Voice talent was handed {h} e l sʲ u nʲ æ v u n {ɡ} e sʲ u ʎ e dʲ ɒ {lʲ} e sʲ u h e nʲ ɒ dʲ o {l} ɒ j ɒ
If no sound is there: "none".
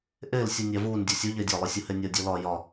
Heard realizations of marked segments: ʔ, dʲ, lˠ, l

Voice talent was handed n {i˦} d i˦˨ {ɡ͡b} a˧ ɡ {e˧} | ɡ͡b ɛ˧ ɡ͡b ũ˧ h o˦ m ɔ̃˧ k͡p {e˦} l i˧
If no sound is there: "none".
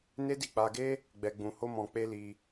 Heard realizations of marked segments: e˦, k͡p, e˦, e˦

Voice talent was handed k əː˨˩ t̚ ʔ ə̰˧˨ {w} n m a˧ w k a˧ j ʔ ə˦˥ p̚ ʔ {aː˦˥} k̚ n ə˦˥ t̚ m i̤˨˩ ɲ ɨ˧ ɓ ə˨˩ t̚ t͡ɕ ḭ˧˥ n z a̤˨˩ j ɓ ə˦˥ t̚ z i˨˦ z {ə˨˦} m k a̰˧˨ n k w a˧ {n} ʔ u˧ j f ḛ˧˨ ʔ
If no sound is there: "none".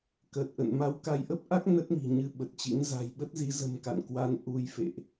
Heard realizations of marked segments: none, a˦˥, ə̤˨˩, n

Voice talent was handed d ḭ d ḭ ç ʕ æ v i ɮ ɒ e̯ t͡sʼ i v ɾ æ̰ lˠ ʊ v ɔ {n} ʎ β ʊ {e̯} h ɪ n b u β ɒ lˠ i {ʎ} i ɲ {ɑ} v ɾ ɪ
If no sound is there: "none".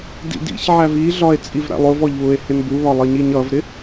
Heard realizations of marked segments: none, e̯, ɲ, ʌ

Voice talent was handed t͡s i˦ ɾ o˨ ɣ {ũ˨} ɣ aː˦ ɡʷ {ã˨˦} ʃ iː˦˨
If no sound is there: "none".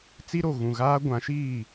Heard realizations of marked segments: ũ˨, ã˨˦

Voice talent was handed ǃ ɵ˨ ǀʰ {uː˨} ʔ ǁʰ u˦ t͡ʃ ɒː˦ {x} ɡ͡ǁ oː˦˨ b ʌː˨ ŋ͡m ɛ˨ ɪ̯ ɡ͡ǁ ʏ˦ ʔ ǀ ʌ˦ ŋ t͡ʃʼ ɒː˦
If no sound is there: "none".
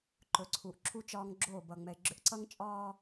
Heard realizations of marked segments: uː˨, ŋ

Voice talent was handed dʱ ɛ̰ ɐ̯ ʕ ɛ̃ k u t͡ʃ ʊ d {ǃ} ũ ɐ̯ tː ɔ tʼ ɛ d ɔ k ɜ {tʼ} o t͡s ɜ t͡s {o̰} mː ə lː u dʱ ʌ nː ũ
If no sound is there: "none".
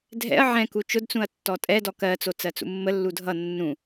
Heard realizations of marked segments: t͡s, t͡s, ṵ

